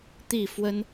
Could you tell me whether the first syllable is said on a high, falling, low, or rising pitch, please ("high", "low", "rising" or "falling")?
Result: falling